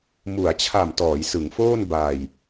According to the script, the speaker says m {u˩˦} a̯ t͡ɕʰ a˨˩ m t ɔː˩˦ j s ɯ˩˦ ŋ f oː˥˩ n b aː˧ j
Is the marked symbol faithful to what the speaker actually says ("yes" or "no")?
yes